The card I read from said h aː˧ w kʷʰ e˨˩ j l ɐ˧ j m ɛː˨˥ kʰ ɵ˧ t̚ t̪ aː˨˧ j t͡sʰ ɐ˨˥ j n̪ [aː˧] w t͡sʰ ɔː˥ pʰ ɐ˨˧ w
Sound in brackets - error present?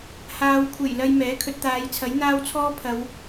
yes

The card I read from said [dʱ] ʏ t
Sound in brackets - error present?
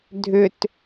no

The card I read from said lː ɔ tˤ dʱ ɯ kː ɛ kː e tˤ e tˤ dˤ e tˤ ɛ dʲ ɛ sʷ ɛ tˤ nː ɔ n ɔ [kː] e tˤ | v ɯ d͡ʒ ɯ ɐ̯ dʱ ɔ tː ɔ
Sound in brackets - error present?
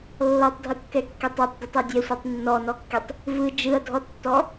no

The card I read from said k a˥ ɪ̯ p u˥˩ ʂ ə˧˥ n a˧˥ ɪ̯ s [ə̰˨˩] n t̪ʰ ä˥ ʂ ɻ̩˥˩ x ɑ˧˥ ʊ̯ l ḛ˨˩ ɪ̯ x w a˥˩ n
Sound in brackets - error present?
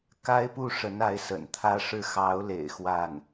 no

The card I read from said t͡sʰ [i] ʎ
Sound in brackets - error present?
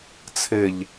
yes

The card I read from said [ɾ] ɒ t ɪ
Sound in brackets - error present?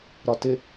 no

